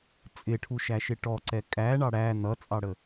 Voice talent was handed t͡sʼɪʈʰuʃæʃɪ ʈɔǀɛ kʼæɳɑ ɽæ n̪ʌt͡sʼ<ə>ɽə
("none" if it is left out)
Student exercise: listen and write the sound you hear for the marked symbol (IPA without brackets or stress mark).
ɑ